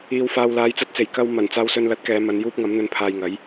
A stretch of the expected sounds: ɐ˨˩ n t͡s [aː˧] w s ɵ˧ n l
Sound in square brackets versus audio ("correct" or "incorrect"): correct